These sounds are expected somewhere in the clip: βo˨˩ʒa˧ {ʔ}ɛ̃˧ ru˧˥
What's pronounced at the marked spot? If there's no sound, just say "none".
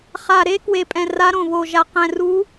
q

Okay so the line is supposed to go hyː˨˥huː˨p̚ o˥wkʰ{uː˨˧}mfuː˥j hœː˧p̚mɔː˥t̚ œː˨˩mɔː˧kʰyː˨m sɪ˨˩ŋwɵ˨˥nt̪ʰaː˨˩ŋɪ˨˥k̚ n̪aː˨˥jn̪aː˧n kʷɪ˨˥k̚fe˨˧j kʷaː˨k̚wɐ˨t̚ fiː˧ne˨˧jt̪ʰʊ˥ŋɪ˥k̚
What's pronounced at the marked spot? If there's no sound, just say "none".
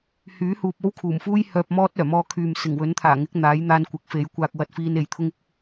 uː˨˩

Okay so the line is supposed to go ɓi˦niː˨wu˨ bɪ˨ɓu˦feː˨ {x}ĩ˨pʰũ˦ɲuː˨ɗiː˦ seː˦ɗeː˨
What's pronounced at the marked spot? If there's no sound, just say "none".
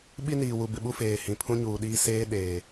h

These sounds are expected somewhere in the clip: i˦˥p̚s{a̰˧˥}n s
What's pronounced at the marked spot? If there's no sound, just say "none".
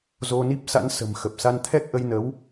a̰˧˥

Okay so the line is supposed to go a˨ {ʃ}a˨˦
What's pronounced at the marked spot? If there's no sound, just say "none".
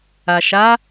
ʃ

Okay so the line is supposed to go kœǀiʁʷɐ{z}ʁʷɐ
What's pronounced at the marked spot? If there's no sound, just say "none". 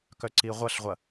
ɬ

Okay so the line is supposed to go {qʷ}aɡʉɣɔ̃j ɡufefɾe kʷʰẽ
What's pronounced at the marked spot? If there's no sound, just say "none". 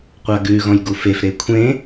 qʷ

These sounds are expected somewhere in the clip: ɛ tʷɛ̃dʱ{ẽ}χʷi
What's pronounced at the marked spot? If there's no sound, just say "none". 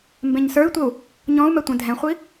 ɛ̃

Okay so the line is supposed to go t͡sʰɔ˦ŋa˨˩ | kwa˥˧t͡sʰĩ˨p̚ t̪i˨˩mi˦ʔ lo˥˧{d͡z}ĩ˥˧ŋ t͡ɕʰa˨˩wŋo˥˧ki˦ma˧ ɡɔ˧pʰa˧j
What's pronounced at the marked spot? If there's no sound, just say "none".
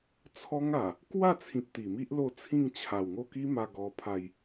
t͡sʰ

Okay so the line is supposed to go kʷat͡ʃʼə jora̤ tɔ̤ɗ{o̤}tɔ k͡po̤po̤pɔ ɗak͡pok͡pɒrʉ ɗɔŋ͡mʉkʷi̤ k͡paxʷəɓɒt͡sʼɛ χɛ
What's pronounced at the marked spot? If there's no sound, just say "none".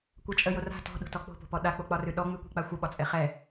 o̤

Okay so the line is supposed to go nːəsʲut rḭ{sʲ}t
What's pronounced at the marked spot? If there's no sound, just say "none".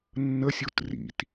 none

